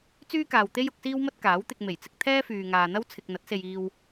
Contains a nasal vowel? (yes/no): no